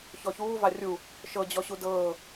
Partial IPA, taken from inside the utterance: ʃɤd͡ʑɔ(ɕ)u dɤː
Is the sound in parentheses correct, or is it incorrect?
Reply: correct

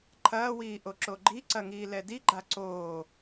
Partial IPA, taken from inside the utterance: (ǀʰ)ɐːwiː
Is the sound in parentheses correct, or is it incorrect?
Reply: incorrect: ǃʰ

